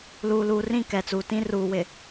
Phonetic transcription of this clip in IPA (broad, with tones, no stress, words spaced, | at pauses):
luː˨luː˨rĩ˦˨ kɛ˨t͡suː˨ tĩ˦ruː˨wɪ˨